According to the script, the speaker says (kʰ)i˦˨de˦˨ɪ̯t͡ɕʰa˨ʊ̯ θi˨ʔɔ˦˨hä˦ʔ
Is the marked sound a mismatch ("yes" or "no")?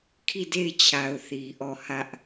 no